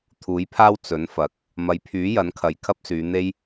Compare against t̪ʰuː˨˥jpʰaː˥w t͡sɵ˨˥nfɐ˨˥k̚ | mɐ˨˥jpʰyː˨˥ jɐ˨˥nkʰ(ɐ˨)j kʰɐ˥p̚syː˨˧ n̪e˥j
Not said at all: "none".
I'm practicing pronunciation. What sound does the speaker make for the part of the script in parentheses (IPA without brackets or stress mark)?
ɐ˨